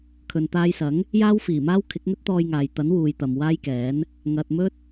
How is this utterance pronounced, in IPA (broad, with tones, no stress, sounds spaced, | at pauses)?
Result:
kʰ ɵ˨ n t̪ aː˧ j s ɐ˨˥ ŋ | j aː˥ w f iː˨˩ m aː˥ w kʰ ɪ˨˥ k̚ ŋ ɵ˥ t̚ t̪ ɔː˧ j ŋ aː˨ j t̪ ɐ˨˥ n w uː˨ j t̪ ɐ˨ m w aː˥ j k ɛː˨˥ n | ŋ ɐ˨ t̚ m ɵ˥ t̚